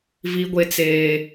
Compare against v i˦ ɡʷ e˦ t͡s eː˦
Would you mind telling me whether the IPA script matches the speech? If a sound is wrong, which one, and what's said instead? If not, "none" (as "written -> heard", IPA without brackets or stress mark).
none